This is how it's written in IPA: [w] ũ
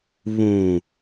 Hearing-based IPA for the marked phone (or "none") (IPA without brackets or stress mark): β